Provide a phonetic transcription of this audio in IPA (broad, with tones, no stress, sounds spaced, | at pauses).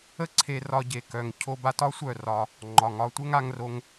ə˦ ǀʰ e˧ r ɒ˧ ɟ e˨ k œ˨ ŋ cʰ o˧ b a˧ t ɒ˦ sʷ œ˦˨ r ɒ˧ | ŋ͡ǃ ɒ˨ ŋ ɒ˧ tʷ ɘ˦ ŋ a˧ ŋ r o˧ ŋ